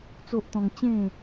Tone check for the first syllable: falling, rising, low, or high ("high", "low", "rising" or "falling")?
high